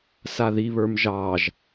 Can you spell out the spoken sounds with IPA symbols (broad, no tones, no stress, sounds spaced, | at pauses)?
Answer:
s a ð i β ə˞ m ʒ ɑ ʒ